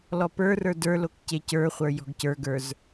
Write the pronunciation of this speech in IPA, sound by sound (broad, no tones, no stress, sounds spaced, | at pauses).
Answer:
l ɔ p ə˞ r ə˞ d ə˞ l o k c e c ə˞ χʷ ə˞ j ɔ̤ ɡ c ə˞ ɡ ə˞ z